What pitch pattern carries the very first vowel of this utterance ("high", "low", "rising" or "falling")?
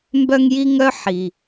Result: high